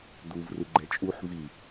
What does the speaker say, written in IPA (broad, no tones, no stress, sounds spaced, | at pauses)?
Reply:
d̪ u v r ɯ ɡ͡ǃ ɛ t͡ʃʼ u ħ v i